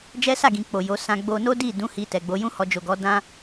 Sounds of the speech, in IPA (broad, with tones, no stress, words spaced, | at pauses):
d͡ʒɛ˦sa˦˨ ɡĩ˨ k͡po˨jo˨˦ sã˧ɡ͡bo˧ no˦di˦˨dũ˨˦ hi˧ tɛ˨ɡ͡bo˨˦jũ˦hɔ˧ d͡ʒo˨ɡɔ˨˦ dã˦